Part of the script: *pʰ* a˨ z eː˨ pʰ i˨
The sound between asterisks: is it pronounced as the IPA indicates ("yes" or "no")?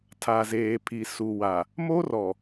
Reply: no